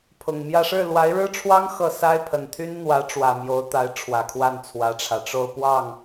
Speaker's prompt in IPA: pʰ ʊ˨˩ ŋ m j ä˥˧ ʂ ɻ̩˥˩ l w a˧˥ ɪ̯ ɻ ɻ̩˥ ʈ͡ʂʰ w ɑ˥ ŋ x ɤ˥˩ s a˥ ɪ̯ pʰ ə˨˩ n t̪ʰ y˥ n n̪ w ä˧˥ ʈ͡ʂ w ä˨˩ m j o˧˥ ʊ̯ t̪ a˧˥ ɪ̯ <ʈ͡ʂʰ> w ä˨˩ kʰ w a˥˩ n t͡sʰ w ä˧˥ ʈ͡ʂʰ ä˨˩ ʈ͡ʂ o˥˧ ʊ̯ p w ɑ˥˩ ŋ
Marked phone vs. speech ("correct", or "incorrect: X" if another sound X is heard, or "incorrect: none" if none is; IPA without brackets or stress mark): correct